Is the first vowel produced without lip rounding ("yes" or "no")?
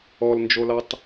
no